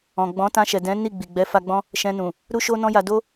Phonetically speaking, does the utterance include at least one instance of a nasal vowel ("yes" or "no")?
yes